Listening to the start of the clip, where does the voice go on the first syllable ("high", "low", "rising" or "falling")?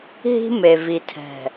high